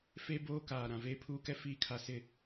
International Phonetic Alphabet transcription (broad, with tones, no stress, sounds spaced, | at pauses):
f e˦ b oː˦ k aː˨ ɾ ã˨ v eː˦ pʰ uː˦ k ɛ˦ f iː˦ kʰ a˨ s ɪ˦